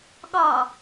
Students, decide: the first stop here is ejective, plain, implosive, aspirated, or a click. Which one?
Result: implosive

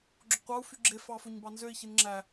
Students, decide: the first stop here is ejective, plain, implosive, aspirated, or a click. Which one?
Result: click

